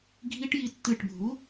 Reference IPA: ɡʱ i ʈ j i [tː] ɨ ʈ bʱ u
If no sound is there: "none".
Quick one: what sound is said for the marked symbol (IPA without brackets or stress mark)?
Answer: tː